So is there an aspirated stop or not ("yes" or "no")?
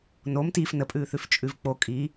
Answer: no